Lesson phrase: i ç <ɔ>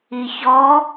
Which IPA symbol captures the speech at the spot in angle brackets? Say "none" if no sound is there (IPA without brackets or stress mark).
ɔ